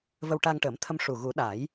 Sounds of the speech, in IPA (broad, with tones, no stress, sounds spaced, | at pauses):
v ə˧ w ʈ a˧ ŋ ʈ əː˨˩˦ m t̪ʰ ə˧ m ʂ u˨˩ ɣ u˨˩˦ ɗ a˨˩˦ j